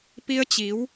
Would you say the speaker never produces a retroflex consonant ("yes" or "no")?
yes